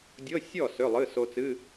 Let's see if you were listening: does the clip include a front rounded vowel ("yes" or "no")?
yes